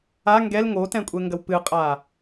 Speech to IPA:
a ŋ ɡ ɛ l ŋ o t ɛ̃ kʷʼ ɛ ŋ ɡ ɐ w p ɨ qʼ a

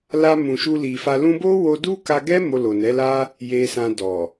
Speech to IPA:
l a˧ m ũ˨ ʃ u˧ l i˨ f a˧ l ũ˧ b o˦ w o˧ d u˦ k a˧ ɡ ɛ˦ m o˧ l o˨ n ɛ˨˦ l a˧ | j e˧ s ã˧ d ɔ˨

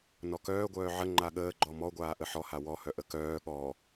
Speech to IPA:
n ɔ k œː ɡʷ œː ʕ ə ŋ͡ǃ a ɠ əː ɡ͡ǃ ɔ m ɔ ɡʷ aː ʔ ə ħ ɔ h a w ɔ h œ ʔ ə k œː ɠ ɔ

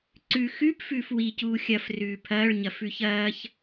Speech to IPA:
ǀ ʉ x ʉ p f ʉː f w i c uː xʲ ɐ f r ʉː pʰ ɐː ɭ ɲ ɐ f ʉ ç ɐː ç

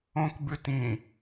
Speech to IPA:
õ k b ʉ t ĩ

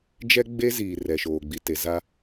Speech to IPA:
d͡ʒ ɛ˦ ɡ͡b e˦ z iː˨ r ɛ˨ ʃ oː˨ ɡ͡b i˨ t e˨ z a˦

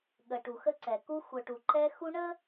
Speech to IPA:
ɠ ə˨ ʈ u˨ x ə˦ ǀ ɛ˨ k u˦ xʷ œ˨ ʈ u˨ ǃ ɛ˦ x u˦ ɳ ə˦

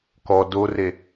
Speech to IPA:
k ɔ d o r e

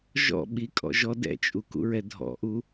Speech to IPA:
ʒ ɔ̰ ɓ i kʼ ɔ̰ ʒ ɔ d ɛ̰ t͡ʃʼ u k ṵ ɹ ɛ dʱ ɔ̰ ʔ u

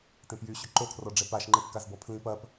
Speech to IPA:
t ẽ p j y ɕ ʏ ǃ o kʰ r ɔ ɖ͡ʐ ɛ p a ʃ ŋ͡ǃ e p k a z b ɔ pʰ l ĩ p ɐ p

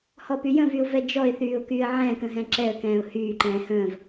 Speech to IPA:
h ɔ p y j ə̃ v y ʊ̯ v ɛ d͡ʒ ɔ ɪ̯ θ yː ʊ̯ k yː ə̯ ʕ ɛ̃ː k ə̃ ɦ ɛ̃ ǁ ɛ ə̯ k ɛ̃ː ʊ̯ h yː ǃ ɛ̃ː h ə̃ː v

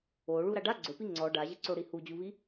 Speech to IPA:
o ɭ u ɾ a ɖ a ɡ͡ǀ ʊ p i ŋ͡ǀ ɔ ɖ a ʑ ɪ ǀ o ɽ i h u d͡ʑ u β i

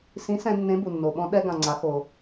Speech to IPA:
s ĩ˨˥ s ɛ̃˧ nː ẽ˨˥ b u˩ nː o˩ ɓ ɔ̃˧ ɗ ɛ˧ ɡ ã˩ ŋ͡ǀ a˩˧ x o˩

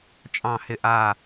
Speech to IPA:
t͡ʃʼ ɑ̃˥˧ h ɪ˥˩ ʔ a˥˧

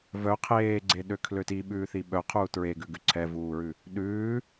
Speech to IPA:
v œ qʰ eː ɡ͡ǀ e ɗ ø kʰ l ø t i ɓ ʉː θ i ɓ œ qʰ uː t ɹ e ɡ ʉ ɡ ʉ ǀʰ ɛ v uː ɹ ʉ | ɗ ʉː

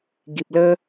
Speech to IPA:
ɡ i˨ p̚ l ə˦

